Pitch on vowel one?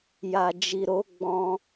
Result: low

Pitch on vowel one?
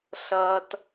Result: high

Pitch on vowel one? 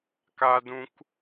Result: low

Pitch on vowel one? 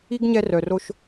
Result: high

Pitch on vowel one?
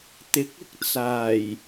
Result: rising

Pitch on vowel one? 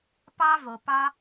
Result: high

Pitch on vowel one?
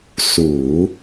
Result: low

